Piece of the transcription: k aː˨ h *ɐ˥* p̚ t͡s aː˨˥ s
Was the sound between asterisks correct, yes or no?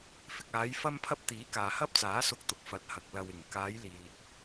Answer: yes